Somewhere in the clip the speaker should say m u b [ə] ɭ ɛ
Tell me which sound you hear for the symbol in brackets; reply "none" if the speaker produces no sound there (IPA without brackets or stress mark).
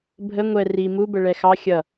ə